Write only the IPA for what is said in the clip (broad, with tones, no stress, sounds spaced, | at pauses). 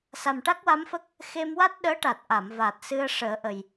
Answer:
s a˨˩ m ʈ a˦˥ k̚ w a˧˥ m f ə˦˥ k̚ | x e˧ m w a˦˥ t̚ ɗ əː˧˥ ʈ a˨˩ t̚ ʔ a˨˩˨ m v aː˨˩ t̚ s ɨ˧ ə̯ ʂ əː˨˩˦ ʔ ə˨˩ j